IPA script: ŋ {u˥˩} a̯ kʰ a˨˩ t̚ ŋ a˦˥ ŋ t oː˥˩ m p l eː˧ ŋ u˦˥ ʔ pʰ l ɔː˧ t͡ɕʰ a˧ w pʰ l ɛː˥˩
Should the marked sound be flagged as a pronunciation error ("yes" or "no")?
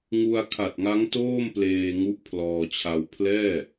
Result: yes